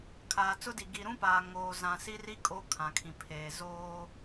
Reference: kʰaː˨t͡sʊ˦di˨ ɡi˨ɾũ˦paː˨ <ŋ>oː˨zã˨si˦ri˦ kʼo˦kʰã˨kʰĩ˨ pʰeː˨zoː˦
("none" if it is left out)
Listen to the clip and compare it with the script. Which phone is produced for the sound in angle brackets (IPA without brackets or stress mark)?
ŋ